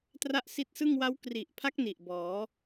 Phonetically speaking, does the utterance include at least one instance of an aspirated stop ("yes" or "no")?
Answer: yes